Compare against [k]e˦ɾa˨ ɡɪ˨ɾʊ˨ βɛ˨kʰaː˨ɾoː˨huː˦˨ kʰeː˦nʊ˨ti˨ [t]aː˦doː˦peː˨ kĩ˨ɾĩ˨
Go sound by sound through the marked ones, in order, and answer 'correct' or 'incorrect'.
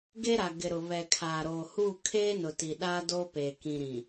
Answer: incorrect: ɡ, incorrect: ɗ

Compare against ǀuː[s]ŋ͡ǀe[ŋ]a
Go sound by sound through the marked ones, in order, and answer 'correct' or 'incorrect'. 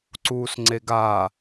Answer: correct, incorrect: ɡ

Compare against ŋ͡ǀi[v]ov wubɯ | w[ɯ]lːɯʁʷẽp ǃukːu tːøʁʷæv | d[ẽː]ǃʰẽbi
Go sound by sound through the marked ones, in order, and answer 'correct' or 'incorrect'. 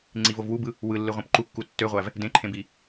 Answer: correct, correct, incorrect: ẽ

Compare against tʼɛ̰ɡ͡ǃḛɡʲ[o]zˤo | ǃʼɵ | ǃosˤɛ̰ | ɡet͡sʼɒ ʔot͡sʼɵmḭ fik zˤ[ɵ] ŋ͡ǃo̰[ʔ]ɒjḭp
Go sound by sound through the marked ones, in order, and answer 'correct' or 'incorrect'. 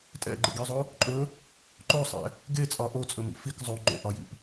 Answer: correct, incorrect: o, correct

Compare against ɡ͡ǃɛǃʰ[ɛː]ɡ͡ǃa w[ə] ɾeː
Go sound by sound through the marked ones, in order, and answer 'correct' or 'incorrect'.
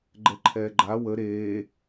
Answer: correct, correct

